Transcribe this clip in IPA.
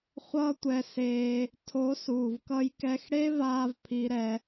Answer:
χʷ ʌː˦ tʷ ɛ˧ s eː˧ | tʰ o˨˦ s uː˨ v k ʌ˦ j k ɛ˦ x ɽ e˦ v aː˧ v pʰ i˦ ɾ ɛ˦

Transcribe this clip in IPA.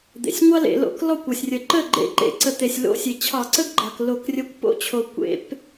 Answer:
d̪ ḛ˩ sʲ ŋʷ ɑ˥ l ḛ˧˩˧ l o̰˧˩˧ k l ɔ˥˩ kʷ ɔ˩ sʲ rʲ ə˩ ǃ ə˥˩ ɡ͡ǃ ḛ˧˩˧ ǃ ḛ˩˧ ǀ ə˧˩˧ t̪ e˩ sʲ l o̰˧˥˧ sʲ e˩ t͡ɕʰ ɑ˧˩˧ ǀ ə˥ ɡ ɡ͡ǃ ɑ˩ k l o˧˩˧ k rʲ ə˧˥˧ kʷ p o̰˥ t͡ɕʰ o˩ kʷ ḛ˧˩˧ p

